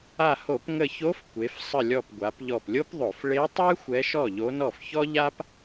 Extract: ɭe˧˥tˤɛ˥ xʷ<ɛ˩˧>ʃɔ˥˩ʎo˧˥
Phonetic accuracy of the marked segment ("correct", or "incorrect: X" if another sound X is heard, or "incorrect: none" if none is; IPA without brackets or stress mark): incorrect: ɛ˧˥